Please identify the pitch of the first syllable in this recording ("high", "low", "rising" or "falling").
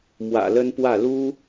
low